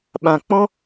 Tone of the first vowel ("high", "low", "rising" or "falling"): low